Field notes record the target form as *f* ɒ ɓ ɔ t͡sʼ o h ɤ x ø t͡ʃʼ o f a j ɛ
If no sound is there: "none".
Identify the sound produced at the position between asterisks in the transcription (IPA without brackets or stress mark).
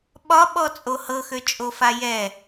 ɓ